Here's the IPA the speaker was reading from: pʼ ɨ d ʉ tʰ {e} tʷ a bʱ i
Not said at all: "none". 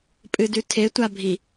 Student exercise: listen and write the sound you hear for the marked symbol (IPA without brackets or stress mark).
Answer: e